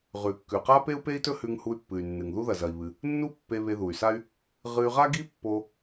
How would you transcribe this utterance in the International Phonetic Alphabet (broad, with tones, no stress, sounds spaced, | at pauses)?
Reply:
ʁ ʉ˩ kː ʉ˩ q a˥ p e˥ u̯ p e˥ i̯ t ɵ˥ h ʉ˧ ŋ h u˧ y̯ pː ɨ˩ y̯ nː ɨ˩ ŋ ð u˥ ð ɐ˩ z ɐ˩ i̯ β ɨ˩ | nː u˥ pː e˧ β e˧ ð u˩ y̯ s a˥ y̯ | ʁ ɨ˧ y̯ ʁ a˥ ɡ i˥ pː o˧